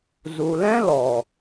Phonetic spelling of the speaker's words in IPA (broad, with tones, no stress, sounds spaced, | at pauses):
z u˨ l ɛ̃˦ l ɔ˨